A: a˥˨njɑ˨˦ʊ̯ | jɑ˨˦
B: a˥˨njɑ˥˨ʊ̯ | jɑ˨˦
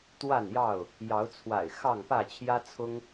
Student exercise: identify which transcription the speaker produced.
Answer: B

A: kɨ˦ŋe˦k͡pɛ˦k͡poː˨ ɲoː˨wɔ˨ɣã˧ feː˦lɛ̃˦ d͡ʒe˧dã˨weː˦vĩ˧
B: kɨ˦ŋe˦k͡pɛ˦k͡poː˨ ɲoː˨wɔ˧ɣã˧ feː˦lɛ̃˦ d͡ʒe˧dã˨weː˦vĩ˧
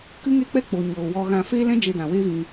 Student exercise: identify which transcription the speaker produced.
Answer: B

